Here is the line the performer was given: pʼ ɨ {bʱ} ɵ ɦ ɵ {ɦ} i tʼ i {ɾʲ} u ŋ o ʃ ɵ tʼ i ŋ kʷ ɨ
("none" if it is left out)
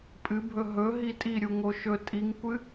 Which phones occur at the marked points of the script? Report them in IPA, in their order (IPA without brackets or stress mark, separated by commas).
bʱ, ɦ, ɾʲ